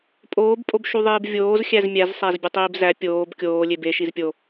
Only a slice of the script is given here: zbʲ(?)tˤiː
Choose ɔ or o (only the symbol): o